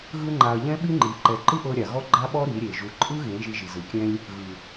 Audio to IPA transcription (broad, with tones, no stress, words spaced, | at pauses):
ɣɯ˦ŋ͡ǃa˧ɐ̯ ʎɛ̃˦ɓi˦ŋ͡ǃi˨˦ ǃɛ˨ǃɯ˦ʔɤ˧ ɾʲa˨ɣɔ˦ ɡ͡ǃa˦ɓɔ˦ ɾi˨˦ɾʲe˨ ʒu˨ǃʼɯ˦ɣẽ˨˦ ʒi˧ʒi˨zɯ˨kʲɛ̃˦lʲ | ɣɯ˨